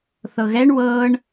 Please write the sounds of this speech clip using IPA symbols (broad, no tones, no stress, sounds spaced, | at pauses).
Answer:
θ ɤ ɣ ɛ ɳ w ɤ ɳ